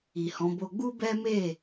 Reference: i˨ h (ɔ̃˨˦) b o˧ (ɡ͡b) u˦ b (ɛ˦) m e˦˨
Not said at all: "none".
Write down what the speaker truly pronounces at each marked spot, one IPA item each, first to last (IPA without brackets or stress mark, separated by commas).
ɔ̃˨˦, ɡ͡b, ɛ˦